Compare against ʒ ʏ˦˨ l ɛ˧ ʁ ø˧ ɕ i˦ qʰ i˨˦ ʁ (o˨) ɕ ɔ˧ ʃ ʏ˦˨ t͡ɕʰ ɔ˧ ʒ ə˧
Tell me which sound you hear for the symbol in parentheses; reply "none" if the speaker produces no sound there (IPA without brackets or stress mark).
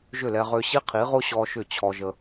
o˦